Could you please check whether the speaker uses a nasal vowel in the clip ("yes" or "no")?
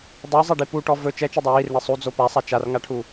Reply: no